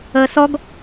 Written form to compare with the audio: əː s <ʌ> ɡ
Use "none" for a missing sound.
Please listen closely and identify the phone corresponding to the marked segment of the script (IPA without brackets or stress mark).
ɔ